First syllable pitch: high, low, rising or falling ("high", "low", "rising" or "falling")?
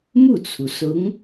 falling